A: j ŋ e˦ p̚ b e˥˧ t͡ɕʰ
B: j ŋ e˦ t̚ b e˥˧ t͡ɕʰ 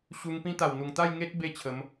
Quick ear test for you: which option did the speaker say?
B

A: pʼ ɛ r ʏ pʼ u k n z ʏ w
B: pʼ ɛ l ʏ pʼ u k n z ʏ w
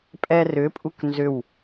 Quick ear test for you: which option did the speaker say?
A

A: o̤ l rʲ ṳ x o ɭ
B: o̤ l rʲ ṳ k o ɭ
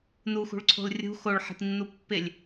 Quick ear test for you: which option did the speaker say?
A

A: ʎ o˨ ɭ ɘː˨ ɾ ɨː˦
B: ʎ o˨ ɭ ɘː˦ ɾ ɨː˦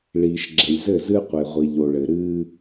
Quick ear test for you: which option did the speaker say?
A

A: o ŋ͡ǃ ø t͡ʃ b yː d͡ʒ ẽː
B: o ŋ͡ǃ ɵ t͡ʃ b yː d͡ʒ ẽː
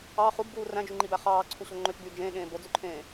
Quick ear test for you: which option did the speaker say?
A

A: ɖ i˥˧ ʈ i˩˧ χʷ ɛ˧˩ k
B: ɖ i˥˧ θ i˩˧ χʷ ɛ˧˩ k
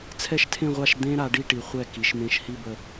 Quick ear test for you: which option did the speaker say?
A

